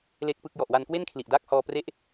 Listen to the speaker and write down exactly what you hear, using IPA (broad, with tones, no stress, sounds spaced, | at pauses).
l e˥˩ k̚ p ɯ˥˩ k̚ j ɔ˨˩ ʔ w a˧ n k w e˥˩ n kʰ l i˨˩ ʔ d aː˦˥ k̚ h ɔː˥˩ p r e˥˩ ʔ